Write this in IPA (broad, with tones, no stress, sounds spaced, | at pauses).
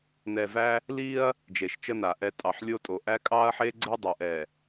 n ɛ˨ v æ˦ | l i˦ ɐ̯ | d͡ʒ e˨ ʃ t͡ʃ ə˦ n a˨ ʔ ɛ˦ tʼ ɑ˨ ħ lʲ o˦ tʼ o˨ ʔ æ˦ kʼ ɑ˦ ɐ̯ ħ e˦ ɡ͡ǀ ɛ˦ dˤ o˨ ʔ ɛ˨